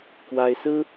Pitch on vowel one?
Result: high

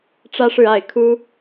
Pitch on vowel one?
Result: high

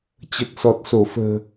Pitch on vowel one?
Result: low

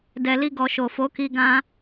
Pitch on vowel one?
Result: low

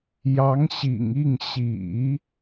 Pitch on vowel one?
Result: rising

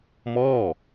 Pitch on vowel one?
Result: falling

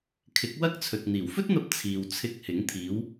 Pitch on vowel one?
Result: rising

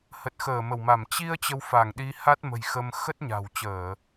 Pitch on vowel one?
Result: low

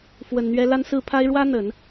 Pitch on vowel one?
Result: low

